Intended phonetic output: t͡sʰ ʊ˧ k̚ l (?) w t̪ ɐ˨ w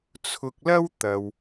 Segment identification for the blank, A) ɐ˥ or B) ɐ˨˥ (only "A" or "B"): A